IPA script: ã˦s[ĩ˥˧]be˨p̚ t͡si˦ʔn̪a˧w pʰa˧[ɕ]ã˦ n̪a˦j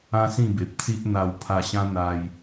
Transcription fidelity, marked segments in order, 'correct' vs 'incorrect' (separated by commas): correct, correct